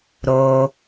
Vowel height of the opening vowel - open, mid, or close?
mid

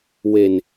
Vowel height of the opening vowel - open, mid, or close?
mid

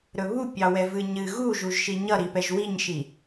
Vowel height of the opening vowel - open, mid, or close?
mid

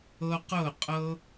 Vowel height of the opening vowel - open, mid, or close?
mid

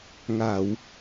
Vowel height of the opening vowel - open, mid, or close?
open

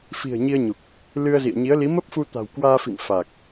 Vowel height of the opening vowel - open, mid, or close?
close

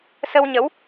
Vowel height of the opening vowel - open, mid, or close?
mid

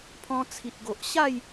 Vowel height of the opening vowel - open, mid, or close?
mid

